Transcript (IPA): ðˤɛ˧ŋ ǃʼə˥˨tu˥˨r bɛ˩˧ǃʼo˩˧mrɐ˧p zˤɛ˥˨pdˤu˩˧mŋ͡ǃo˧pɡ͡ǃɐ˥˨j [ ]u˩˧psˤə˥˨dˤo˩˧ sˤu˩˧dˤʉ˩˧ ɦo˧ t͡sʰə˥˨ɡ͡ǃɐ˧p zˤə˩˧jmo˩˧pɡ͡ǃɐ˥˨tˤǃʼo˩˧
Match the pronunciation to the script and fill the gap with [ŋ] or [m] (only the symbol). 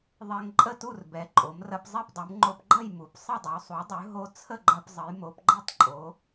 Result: m